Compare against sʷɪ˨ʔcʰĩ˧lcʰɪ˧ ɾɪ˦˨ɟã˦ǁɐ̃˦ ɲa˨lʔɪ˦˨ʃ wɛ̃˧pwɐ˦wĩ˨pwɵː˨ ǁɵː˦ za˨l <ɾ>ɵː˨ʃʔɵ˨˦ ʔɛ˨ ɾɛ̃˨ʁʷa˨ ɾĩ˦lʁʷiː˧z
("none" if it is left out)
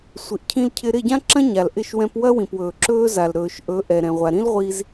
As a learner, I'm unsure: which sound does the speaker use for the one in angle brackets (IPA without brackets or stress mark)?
ɾ